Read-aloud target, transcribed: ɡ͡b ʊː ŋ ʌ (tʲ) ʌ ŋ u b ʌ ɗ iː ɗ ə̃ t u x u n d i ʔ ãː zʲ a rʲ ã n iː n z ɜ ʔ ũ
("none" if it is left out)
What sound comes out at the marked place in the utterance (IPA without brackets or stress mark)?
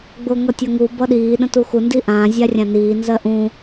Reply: tʲ